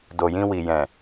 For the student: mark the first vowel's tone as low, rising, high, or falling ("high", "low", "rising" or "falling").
low